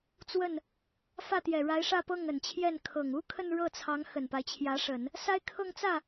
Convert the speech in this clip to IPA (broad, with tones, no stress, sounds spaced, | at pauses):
t͡s w ə˥˩ n | f ä˥˩ t̪ j ɛ˨˩ ɻ a˧˥ ɪ̯ ʂ ä˥˧ p ɤ˥˩ ŋ ə˨˩ n t͡ɕʰ j ɛ˥˩ n kʰ ɤ˨˩ ŋ u˥ kʰ ə˥˧ n ɻ ɤ˥˩ t͡sʰ ɑ˧˥ ŋ x ə˨˩ n p a˦ ɪ̯ t͡ɕʰ j ä˧˥ ʂ ə˨˩˦ n | s a˥ ɪ̯ kʰ ɤ˥˧ ŋ t͡s ä˥˩